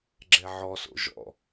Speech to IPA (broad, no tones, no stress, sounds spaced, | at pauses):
ɡ͡ǁ ɛ ʕ ɔ s o̰ ʒ ɔ̰